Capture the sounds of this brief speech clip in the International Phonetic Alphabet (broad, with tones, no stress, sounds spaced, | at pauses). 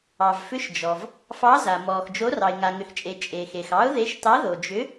ɑ˩ v f ʏ˨˥ ʃ d͡ʒ ɔ˩ v | f ɑ˨˥ z a˩ m ɔː˩ x d͡ʒ o˨˥ r ɑ˩ ɪ̯ ŋ a˩ ŋ ʏ˩ x t͡ʃʼ e˩ t͡ʃʼ e˩ x e˩ x ɑ˨˥ ʊ̯ ð e˨˥ ʃ t ɑ˨˥ ð o˩ d͡ʒ ʏ˨˥